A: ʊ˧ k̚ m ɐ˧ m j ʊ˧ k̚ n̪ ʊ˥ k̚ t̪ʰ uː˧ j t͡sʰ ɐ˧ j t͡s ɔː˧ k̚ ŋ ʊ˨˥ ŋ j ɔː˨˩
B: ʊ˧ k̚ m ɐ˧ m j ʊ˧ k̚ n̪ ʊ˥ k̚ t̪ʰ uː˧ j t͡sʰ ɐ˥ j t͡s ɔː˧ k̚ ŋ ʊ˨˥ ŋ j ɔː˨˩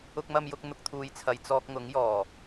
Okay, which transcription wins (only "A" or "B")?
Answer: A